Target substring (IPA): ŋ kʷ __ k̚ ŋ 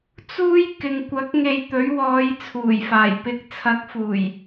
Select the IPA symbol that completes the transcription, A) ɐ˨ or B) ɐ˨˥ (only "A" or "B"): B